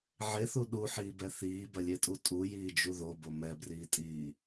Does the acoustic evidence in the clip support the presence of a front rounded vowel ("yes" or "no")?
no